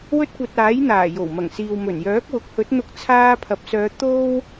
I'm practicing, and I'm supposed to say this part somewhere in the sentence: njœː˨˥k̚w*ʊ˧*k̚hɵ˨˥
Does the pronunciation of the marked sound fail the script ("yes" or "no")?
yes